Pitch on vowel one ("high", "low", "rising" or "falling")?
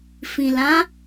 low